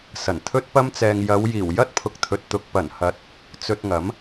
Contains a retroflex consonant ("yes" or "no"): no